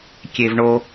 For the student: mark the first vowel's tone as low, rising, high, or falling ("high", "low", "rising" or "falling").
low